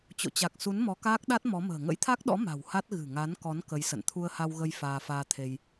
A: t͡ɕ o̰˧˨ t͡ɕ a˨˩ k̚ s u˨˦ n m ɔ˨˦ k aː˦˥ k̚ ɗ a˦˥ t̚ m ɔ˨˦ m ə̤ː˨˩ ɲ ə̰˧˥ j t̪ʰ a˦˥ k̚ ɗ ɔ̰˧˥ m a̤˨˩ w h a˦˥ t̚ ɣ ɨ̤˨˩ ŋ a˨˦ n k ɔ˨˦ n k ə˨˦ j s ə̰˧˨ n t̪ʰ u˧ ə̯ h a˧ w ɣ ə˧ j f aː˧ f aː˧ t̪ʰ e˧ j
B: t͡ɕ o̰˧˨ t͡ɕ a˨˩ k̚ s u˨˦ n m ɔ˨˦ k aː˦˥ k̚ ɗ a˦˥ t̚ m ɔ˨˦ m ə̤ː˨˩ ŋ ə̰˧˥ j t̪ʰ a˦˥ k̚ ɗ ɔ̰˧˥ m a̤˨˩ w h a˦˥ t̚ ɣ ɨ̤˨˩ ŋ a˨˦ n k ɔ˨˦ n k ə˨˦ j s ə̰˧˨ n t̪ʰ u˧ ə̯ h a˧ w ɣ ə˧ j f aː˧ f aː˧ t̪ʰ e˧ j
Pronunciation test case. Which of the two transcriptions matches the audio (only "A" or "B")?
B